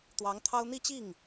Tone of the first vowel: rising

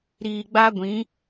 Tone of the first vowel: low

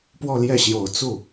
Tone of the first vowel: falling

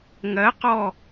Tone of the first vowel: rising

